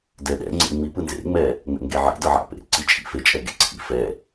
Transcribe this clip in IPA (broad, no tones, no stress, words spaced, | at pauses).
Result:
dɛɗɛ̰ ŋ͡ǀḛŋ͡mi pɯnzḛŋ͡mɛ | ŋ͡mɛ̰ŋɡeʕḭ dɤʕa̰ pḛǀi t͡ʃʼḭ fet͡ʃʼɛ ɡḛǀʰḭ fɛ